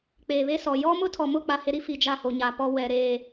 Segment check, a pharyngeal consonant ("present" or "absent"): absent